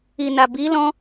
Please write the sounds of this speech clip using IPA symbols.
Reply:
i˨ n a˨ b i˨˦ l ɔ̃˧

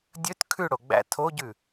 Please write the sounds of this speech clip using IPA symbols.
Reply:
dʲ ɵ t kʰ ʉ ɽ o ɡ͡b æ̰ tʰ o ɟ ʉ

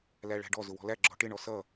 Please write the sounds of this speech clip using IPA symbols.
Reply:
l æ ɭ æ̤ ɖ ɔ z ʊ w ɔ̤ l æ ɡ͡ǁ ɔ̤ ʈ ɪ ɳ ɔ s ʌ

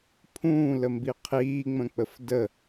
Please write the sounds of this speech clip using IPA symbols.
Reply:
pʰ ũː l ə m b i qʰ iː ŋ͡m ə̃ k͡p ə f d ə

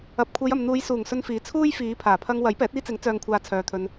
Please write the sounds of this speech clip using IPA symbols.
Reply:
ɐ˨ p̚ kʷʰ e˨˧ j ɐ˨ m n̪ uː˨˧ j s uː˨˩ ŋ s ɵ˧ n f iː˨˥ t͡sʰ uː˥ j f iː˨˧ pʰ aː˨˩ pʰ ɐ˧ ŋ w ɐ˨˥ j p ɛː˨˥ t̚ iː˥ t͡s ɪ˨˥ ŋ t͡s œː˨ ŋ kʷʰ aː˨ t͡sʰ œː˨˧ t̪ʰ ɵ˧ n

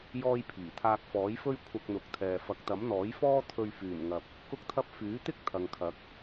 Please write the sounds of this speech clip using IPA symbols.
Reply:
j ɔː˥ j pʰ iː˨˩ t̪ʰ aː˧ k̚ f ɔː˨˥ j f ɵ˥ ɥ kʷʰ ɐ˧ k̚ n̪ ʊ˨ k̚ t̪ʰ ɛː˨ f ɐ˨˥ k̚ t̪ ɐ˨˥ m n̪ ɔː˨˥ j f ɔː˥ t̪ʰ ɵ˧ ɥ f yː˨˩ n ŋ ɐ˨ p̚ | k ʊ˥ k̚ t̪ʰ ɐ˥ p̚ f yː˨˥ t̪ ɪ˥ k̚ t̪ʰ ɐ˨ ŋ kʰ ɐ˨˥ k̚

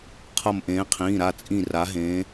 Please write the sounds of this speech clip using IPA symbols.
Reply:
qʰ ʌ˧˩ m ʔ ẽː˨˦ qʰ ĩː˩˧˩ ɾ a˧˩ t͡sʼ ĩ˧˩ r a˨˦ ɦ ẽː˨˦

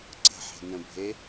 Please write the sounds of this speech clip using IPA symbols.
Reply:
ǀ ə̤ ħ e̤ n ə̃ bʱ e

